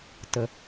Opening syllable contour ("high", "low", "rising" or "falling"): low